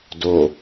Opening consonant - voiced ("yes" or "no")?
yes